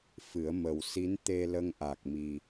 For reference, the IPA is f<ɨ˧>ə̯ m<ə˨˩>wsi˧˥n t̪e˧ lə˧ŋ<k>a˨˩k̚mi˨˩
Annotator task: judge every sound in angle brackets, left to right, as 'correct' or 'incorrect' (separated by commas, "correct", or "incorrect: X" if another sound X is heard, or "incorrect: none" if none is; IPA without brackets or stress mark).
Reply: incorrect: ɨ˨˩˦, correct, incorrect: ʔ